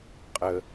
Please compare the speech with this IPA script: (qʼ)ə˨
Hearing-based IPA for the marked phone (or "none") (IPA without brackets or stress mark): qʼ